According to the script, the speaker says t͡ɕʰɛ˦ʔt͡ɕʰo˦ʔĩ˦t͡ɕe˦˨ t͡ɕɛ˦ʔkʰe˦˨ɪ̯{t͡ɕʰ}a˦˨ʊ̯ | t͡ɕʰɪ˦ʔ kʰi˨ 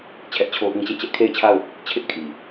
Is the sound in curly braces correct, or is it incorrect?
correct